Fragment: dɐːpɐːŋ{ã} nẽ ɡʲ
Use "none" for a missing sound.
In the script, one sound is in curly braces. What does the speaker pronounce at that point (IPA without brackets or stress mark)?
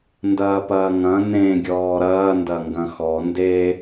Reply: ɐ̃